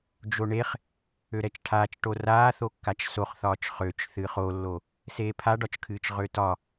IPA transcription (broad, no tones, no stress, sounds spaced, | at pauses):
d͡ʒ o ɳ e χ | ø ɾ ɛ t͡ʃ ʈʰ aː t͡ʃ ʈ o r aː θ o kː a t͡ʃ s o χ θ ɒː t͡ʃ χ ø t͡ʃ θ ɨː χ o lː o | s eː pʰ a ɖ ɒ t͡ʃ kʰ ɨː t͡ʃ ʁ ø t ɒ